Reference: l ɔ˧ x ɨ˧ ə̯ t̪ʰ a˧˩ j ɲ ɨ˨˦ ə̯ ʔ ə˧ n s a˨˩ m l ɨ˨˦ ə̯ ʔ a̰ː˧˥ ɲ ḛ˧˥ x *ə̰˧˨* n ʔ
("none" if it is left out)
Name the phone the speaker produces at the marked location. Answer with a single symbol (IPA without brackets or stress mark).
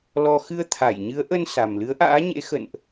ə̰˧˨